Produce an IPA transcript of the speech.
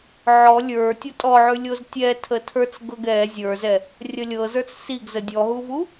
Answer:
ʕ ɔ lʲ ə˞ tʲ ɔ tʼ ɔ ʕ ʉ lʲ o z tʲ ɛ tʰ ə tʰ ə˞ t͡s ɡ ɤ ɡ ɛ zʲ ə˞ z ɛ | rʲ ə lʲ ɤ z ə˞ t͡s s i ɡ z ə dʲ ɔ ɦ u v u

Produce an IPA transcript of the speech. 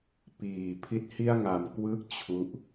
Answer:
p iː˨˩ pʰ i˥˩ t̚ h i˥˩ a̯ ŋ a˧ m k w ɯː˥˩ k̚ t͡ɕʰ u˥˩ ʔ

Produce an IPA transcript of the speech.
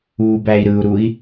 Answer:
uː b æ i̯ ɾ ɯ u̯ ɾ u i̯

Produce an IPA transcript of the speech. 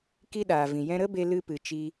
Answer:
k i˦ ɗ aː˨ v ĩ˨ j ɛ̃˧ ɾ ə˦ b e˧ l ɨ˦ p ɨ˧ t͡ʃ i˧

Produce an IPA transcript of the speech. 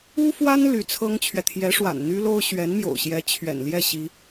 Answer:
u˥ f w a˥ n l y˧˥ t͡sʰ ɤ˥ ŋ t͡ɕʰ ɥ ɛ˨ t̪ʰ j ɛ˧˥ ʂ w a̰˨˩ n n̪ y˥ l o˥ ʊ̯ ɕ ɥ ɛ˧˥ n m j o̰˨˩ ʊ̯ ɕ j ɛ˧˥ t͡ɕʰ ɥ ɛ̰˨˩ n l j ɛ˥˩ ɕ i˥

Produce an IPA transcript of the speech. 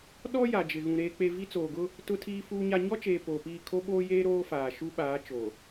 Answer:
ɗ ɔ˦ j a˨ d͡ʒ ɪ˨ ɣ ũ˨ ɾ eː˦ k͡p e˦ v i˦ t͡s oː˨ ɡ ʊ˦ | t ʊ˦ tʰ iː˦ f uː˦ ɲ a˦ ɲ ɔ˦ t͡ʃ eː˨ p oː˨ p iː˦˨ kʰ o˦ ɓ oː˦ j eː˦ ɾ oː˦ f aː˨ ʃ u˦ ɓ aː˨˦ t͡ʃ o˨

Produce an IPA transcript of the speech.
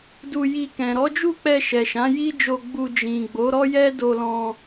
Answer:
d u˧ j i˧ k ɛ̃˨ ɾ ɔ˨˦ d͡ʒ u˦˨ k͡p ɛ˧ ʃ ɛ˨ ʃ ã˨˦ j i˦ d͡ʒ o˧ ɡ͡b u˧ d͡ʒ ĩ˨ ɡ͡b o˨˦ ɾ ɔ˦ j ɛ˦ d o˧ l ɔ̃˧

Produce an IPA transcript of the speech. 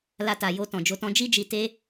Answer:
l a˧ t a˨ j o˧ t ɔ̃˨ d͡ʒ o˧ t ɔ̃˦ d͡ʒ i˦ d͡ʒ i˧ t e˦

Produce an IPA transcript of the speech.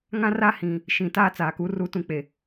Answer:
ŋ ã˦ r a˦ h ĩ˨ | ʃ ĩ˨ t aː˦ t͡s aː˨ k u˨˦ r u˦ t ũ˦ k͡p e˨

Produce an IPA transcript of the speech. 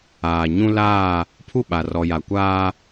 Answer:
aː˨ ɲ ũ˦ l aː˦˨ | pʰ u˦˨ ɓ a˨ r ɔ˨ j a˨ kʷ aː˦

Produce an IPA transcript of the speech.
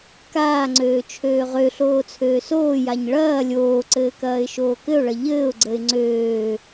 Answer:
k aː ŋ͡ǀ øː t͡ʃʰ øː ʁ ø ɬ oː t͡sʰ øː s oː j a ɲ ɭ ɐː lʲ oː ǀ ɘː k ɐː ɪ̯ ʃ oː k ɘ ʊ̯ ɭ ɐ ʎ ɘː ʊ̯ ɡ͡ǀ ə ɪ̯ ŋ͡ǀ øː

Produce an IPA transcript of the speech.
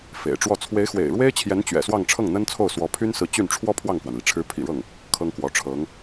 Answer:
f ḛ˨˩ ɪ̯ ʈ͡ʂ w ɔ˥˩ t͡sʰ w e˧˥ ɪ̯ x w ḛ˨˩ ɪ̯ ɻ w e˥ ɪ̯ t͡ɕʰ j ɛ˧˥ n t͡ɕ ɥ ɛ̰˨˩ s w ɑ˥˧ ŋ ʈ͡ʂʰ ɤ˥˩ ŋ n̪ ə˥ n t͡sʰ o˥˩ ʊ̯ s w ɔ˧˥ pʰ y˥ n s ɹ̩˧˥ t͡ɕ y˥˩ n ʈ͡ʂʰ w ɔ˥ pʰ w ɑ˥˩ ŋ k w a˩ n l i˩ ʈ͡ʂʰ ɻ̩˧˥ pʰ ḭ˨˩ ɻ ɤ˥˩ ŋ | kʰ ɤ˥ ŋ k w ɔ˧˥ ʈ͡ʂʰ ɤ˧˥ ŋ

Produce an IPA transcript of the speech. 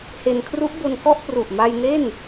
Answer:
h e˧ n kʰ r u˦˥ ʔ b o˧ n k ɔ˥˩ ʔ p r u˨˩ ʔ m a˧ j n e˥˩ n

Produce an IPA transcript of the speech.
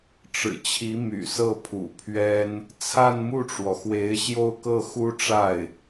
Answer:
ʈ͡ʂ ɻ̩˨˩ t͡ɕʰ i˧˥ m y̰˨˩ s ɤ˥˩ pʰ ṵ˨˩ pʰ ɥ ɛ˥ n | t͡sʰ a˥˧ n m u˥˩ ʈ͡ʂ w ɔ˩ x w e˧˥ ɪ̯ ɕ j o˥˧ ʊ̯ k ɤ˥˩ x u˥ ʈ͡ʂ a˥˩ ɪ̯

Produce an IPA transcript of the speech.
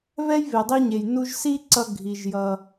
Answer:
β ɛ˥ j β e˩ dˤ i˥ ɲ e˩ j n u˧ ʒ s i˥ ǀ ʌ˧ ɡʱ i˩ ʒ j ʌ˩

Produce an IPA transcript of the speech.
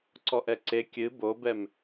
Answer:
ǀ ɔ ʔ ɛ ǀ e kʲ ɨ b o b ɛ m

